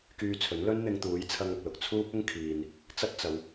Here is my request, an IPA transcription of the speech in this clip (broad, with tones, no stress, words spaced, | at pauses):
kyː˧t͡sʰɵ˨˥n lɵ˥nn̪ɪ˧ŋt̪uː˨˥jt͡sʰɐ˧ŋ ɐ˨k̚lʊ˨k̚ t͡sʰuː˥p̚ʊ˥ŋkʰiː˨n | t͡sɐ˥t̚t͡sɐ˨˧w